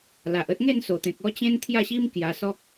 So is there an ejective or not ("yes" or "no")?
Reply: no